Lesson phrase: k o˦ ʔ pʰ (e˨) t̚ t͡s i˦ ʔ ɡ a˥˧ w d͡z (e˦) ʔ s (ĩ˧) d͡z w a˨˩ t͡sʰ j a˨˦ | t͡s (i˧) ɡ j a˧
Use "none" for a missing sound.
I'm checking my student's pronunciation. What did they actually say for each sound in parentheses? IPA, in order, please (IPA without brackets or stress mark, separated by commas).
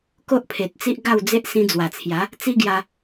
e˨, e˦, ĩ˧, i˦